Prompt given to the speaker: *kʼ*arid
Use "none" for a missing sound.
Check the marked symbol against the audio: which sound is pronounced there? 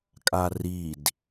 kʼ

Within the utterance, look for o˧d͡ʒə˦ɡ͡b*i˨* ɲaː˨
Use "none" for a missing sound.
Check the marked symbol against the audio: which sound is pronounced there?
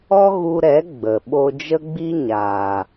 i˦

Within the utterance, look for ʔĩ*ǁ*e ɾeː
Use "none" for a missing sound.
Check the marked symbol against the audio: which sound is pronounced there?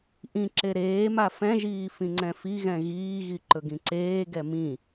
ǁ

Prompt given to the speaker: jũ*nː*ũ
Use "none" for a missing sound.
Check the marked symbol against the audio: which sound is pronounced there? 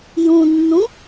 nː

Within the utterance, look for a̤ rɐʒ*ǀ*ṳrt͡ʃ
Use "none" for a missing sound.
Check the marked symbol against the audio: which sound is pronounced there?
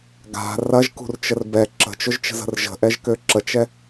k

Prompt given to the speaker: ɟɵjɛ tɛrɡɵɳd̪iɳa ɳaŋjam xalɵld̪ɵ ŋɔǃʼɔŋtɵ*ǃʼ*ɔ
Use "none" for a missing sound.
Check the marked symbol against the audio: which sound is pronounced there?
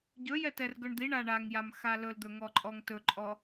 ǃʼ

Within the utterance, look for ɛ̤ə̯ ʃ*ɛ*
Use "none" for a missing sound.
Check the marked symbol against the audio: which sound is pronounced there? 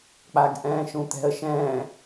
ɛ̃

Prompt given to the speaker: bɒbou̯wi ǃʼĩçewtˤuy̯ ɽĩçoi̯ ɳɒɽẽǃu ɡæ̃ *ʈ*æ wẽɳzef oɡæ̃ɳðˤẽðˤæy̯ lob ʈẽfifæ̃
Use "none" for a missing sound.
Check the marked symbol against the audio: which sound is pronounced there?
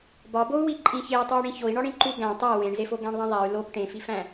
tˤ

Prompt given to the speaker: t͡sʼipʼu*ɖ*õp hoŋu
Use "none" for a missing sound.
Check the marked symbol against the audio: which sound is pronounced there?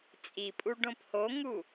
ɖ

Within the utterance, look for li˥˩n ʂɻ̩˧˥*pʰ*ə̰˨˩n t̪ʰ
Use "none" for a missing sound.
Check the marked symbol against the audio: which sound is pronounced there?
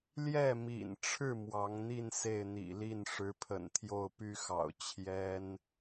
pʰ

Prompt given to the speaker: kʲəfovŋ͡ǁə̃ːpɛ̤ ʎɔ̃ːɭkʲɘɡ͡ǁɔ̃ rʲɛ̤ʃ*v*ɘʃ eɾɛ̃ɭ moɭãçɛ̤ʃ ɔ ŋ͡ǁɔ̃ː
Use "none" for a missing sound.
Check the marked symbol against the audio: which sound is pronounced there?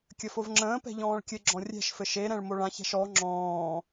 f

